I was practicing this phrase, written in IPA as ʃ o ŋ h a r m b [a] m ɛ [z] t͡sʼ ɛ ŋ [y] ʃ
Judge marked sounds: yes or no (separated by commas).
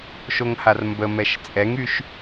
no, no, yes